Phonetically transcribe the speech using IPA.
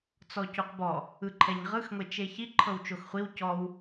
t͡s ɔ c u q b ɔ | ɯ ǃʰ ɛ ɲ ʁ ɯ x ŋʷ e t͡ʃ e ç i ǃʰ ɤ w t͡ʃ o x χʷ i w c ɔ w

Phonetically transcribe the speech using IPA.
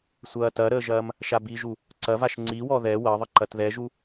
sʷ ɐː t ɐ ɾ əː ʒ ɐː m | ʃ a b i ʒ u | ǀ ɐ v a ʃ ŋ͡ǀ i w ɔ ð ɛ w ɐ ðˤ ə ǃ ɐ t ð ɛ ʒ u

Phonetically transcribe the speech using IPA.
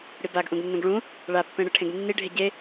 ɽ i b a ɡ ʔ ũ ɡ nː ũ ɡ ɭ ũ | ɭ a pː ẽ ɽ ɯ ʈʰ ẽ ɡ nː i ɖʱ e ɟ e

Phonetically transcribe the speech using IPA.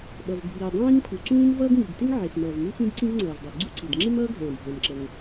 ɓ ʌ˩ v bʱ iː˩ dˤ ĩː˥ ŋ pʰ u˩ ǀ ũː˥ m v ʌː˥ ɡ ŋ i˩ ɡ t ɪ˥ ŋ ʕ ɪ˩ s m ʌː˩ v m u˥ x ĩ˥ d ǀ ĩ˥ v ŋ͡ǀ ʌː˩ v dˤ ɛ˩ ɡ͡ǀ u˥ ǀ i˩ d ŋ͡ǁ ɪ˥ m ʌː˥ ɡʱ ɛ̃ː˩ bʱ ɛ̃˩ m ǁ ə˩ ŋ

